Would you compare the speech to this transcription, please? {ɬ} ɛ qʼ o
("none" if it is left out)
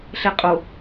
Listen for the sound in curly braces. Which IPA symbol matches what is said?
ɬ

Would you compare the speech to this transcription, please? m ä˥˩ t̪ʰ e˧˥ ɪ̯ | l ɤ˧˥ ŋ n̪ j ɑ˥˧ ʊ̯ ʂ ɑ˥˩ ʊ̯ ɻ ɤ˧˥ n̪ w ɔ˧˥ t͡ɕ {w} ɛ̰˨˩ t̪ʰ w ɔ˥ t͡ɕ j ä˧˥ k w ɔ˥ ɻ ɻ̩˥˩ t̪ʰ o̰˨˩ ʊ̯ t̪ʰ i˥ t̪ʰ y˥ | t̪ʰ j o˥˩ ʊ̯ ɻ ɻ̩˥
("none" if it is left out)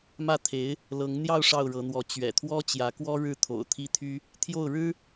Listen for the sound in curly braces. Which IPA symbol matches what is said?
ɥ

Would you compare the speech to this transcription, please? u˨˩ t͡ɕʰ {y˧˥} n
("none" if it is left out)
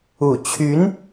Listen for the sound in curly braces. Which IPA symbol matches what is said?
y˧˥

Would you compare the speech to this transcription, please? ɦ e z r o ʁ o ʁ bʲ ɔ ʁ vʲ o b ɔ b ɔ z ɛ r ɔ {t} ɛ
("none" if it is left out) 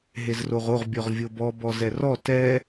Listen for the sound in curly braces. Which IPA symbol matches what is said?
t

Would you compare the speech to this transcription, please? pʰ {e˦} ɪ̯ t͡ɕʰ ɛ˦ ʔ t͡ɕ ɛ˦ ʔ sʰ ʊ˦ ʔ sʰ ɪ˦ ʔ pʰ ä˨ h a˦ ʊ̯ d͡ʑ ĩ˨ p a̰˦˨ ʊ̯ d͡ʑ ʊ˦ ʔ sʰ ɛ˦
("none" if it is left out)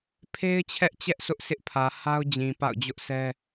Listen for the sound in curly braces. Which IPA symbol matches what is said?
e˦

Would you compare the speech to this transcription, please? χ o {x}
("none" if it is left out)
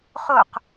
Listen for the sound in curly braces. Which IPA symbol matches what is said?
q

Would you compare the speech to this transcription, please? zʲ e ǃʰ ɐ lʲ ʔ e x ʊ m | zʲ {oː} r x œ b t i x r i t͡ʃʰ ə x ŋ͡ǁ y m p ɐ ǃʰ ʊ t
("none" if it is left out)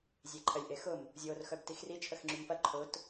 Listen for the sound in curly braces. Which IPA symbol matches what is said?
oː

